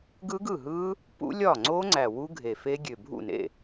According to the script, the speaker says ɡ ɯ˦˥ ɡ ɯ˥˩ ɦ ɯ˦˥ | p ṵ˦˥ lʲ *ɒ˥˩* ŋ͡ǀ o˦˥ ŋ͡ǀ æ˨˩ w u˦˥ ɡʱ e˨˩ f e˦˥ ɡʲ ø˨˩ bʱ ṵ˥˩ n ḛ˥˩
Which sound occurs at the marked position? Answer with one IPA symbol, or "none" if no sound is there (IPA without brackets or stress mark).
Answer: ɒ˥˩